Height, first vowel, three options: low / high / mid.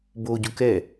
mid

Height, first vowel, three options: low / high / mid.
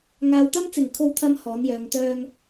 low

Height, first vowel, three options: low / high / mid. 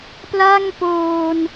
low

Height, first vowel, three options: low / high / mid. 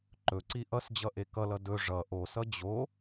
mid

